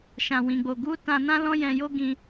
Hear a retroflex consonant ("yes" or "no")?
no